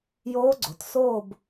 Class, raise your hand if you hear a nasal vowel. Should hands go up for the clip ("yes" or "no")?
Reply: no